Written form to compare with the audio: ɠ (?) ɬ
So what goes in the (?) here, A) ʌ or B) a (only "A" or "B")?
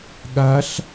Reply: B